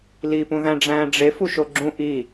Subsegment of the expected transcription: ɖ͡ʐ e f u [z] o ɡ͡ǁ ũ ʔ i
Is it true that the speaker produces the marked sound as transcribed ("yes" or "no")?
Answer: no